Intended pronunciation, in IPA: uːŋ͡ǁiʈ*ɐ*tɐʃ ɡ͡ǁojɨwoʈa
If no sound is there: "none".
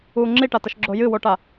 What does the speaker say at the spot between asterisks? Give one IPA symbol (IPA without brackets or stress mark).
a